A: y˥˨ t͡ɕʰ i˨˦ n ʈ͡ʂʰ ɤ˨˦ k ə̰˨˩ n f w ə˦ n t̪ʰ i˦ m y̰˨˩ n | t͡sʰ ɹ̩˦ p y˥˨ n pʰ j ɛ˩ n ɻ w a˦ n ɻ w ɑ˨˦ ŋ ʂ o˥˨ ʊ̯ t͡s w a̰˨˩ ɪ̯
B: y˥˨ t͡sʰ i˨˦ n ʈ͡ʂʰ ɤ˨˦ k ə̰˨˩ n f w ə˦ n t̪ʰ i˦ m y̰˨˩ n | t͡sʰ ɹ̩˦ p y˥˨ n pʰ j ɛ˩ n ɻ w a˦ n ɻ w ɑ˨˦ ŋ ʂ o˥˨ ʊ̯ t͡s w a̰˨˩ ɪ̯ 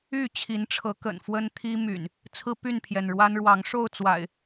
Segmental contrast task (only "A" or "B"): A